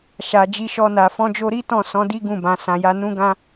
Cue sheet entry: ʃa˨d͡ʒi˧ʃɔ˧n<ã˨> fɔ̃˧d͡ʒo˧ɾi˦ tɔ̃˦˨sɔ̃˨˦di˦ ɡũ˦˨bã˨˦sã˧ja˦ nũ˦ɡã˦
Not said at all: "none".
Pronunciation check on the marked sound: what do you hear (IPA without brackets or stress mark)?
a˨